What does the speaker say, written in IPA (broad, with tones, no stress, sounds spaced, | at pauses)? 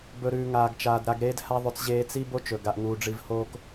b ɵ˨ ɾ ʉː˨ ŋ aː˨ ɡ t͡ʃ aː˨ d ɾ a˨ ɡ ɾ eː˧ d h a˧ ðˤ ʉ˨ t͡s ʑ eː˧ t͡s i˦ b o˦ t͡ʃ ɵ˨ ɡ a˨ ʔ ŋ uː˨ ɖ͡ʐ i˧ v h oː˦ k